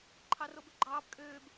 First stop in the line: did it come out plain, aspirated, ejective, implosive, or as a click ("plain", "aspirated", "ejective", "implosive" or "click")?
click